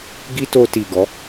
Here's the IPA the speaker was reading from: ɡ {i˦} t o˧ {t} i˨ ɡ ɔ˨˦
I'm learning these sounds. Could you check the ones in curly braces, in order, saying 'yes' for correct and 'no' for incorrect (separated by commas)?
yes, yes